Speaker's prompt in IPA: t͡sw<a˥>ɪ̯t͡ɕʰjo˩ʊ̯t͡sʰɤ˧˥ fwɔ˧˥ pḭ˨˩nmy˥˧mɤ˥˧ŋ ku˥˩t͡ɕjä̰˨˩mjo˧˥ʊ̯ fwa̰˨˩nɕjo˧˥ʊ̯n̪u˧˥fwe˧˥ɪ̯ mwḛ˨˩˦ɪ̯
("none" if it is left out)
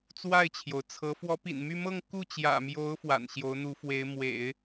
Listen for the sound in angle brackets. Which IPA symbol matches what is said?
a˥˩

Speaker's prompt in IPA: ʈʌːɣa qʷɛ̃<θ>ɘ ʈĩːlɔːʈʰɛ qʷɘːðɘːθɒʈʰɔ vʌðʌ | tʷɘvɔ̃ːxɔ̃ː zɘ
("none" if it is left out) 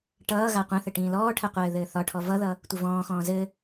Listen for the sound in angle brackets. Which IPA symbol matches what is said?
θ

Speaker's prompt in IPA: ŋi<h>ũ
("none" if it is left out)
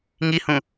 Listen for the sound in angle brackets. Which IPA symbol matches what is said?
h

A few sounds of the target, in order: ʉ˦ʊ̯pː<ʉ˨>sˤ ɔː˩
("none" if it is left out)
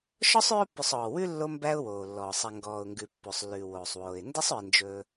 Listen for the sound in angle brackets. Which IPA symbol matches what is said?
ʉ˨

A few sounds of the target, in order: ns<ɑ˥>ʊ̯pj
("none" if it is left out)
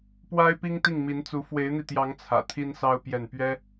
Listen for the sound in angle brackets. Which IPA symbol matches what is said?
ɑ˥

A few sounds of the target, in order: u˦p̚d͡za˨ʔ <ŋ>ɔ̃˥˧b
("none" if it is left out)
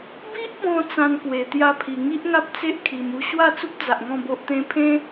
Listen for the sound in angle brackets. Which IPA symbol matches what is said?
ŋ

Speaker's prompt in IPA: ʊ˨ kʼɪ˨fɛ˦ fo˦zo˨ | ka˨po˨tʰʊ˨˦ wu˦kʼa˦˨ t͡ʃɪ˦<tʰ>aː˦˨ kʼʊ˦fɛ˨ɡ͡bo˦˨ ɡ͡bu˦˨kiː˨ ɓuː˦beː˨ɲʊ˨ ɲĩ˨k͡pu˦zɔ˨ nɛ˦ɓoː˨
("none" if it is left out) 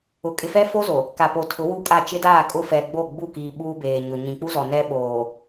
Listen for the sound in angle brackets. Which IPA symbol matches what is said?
d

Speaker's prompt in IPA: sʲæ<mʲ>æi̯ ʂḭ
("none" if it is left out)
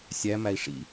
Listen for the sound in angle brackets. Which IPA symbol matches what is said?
m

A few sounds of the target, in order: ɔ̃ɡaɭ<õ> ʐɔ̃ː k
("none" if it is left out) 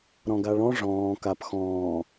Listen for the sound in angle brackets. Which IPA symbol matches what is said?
ɔ̃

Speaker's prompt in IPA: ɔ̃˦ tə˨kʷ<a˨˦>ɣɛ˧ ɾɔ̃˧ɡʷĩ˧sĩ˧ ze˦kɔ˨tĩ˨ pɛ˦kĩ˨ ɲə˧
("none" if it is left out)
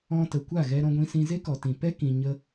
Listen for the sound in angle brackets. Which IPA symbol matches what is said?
a˦˨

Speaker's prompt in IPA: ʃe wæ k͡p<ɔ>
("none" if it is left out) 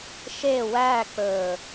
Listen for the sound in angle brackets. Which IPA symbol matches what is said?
ɵ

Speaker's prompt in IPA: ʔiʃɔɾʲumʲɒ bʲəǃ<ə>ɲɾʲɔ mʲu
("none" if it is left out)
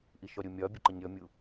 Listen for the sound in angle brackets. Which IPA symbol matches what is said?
ə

